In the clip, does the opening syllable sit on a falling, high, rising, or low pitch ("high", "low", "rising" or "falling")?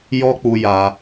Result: high